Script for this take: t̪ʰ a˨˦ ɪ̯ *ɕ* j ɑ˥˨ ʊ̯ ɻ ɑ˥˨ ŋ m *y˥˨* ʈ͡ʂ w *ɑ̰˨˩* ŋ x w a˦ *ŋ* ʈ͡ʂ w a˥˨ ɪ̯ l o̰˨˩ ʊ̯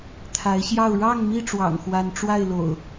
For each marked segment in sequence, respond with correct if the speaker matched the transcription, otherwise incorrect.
correct, incorrect, correct, incorrect

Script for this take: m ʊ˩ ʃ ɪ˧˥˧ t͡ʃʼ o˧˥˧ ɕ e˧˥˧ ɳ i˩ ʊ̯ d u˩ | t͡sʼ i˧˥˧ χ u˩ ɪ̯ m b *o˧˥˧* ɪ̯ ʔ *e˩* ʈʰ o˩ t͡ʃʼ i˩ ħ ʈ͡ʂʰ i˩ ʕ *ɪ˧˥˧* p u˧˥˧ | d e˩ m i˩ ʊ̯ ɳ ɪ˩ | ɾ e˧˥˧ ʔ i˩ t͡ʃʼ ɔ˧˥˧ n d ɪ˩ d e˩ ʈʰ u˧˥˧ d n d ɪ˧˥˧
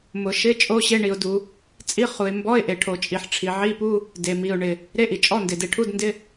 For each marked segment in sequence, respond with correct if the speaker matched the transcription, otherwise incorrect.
incorrect, correct, incorrect

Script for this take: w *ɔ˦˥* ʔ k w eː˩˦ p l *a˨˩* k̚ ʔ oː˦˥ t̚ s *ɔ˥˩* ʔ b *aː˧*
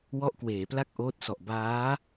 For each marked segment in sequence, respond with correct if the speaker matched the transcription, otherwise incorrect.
correct, incorrect, incorrect, incorrect

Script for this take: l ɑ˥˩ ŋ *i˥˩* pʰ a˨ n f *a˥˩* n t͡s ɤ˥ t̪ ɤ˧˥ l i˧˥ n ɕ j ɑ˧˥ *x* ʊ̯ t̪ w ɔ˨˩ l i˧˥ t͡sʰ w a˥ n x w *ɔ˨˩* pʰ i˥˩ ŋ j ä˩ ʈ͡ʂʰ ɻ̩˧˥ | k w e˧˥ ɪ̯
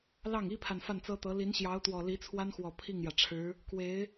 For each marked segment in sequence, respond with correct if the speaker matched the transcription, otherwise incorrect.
incorrect, correct, incorrect, correct

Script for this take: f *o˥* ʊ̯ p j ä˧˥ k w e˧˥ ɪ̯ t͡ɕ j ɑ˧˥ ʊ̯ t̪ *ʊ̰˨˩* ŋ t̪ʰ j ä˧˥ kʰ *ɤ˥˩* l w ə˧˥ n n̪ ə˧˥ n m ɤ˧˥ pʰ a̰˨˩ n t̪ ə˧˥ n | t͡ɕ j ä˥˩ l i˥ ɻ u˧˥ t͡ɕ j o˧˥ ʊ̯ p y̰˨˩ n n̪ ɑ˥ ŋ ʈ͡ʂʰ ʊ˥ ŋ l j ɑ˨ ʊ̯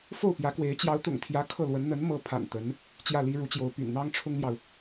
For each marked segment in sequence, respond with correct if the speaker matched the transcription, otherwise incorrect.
incorrect, correct, correct

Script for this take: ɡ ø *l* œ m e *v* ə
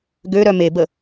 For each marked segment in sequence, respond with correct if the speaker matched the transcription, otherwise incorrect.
incorrect, incorrect

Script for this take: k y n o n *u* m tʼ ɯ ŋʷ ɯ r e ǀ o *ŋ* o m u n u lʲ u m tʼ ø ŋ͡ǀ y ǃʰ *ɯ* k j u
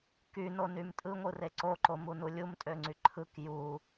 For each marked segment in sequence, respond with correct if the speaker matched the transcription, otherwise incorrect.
incorrect, incorrect, correct

